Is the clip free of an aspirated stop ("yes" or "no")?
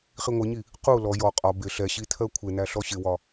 no